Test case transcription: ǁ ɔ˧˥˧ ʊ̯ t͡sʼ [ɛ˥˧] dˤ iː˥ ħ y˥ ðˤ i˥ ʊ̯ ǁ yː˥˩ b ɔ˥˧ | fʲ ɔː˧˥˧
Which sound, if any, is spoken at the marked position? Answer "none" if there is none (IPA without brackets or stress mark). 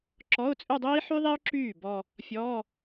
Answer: ø˥˧